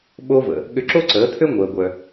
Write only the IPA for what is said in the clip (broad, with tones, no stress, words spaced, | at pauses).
ɓo˧və̰˩ | ɠʏ˧ǁo˥ǀəː˩˥t̪ʰø˥ ŋʷəː˩ɡʷœ˩